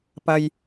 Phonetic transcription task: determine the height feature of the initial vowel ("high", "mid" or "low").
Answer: low